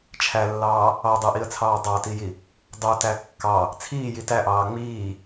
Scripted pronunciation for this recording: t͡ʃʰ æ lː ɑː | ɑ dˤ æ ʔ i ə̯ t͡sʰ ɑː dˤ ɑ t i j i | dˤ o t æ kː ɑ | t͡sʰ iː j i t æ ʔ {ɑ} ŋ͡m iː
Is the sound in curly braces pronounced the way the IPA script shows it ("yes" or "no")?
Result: no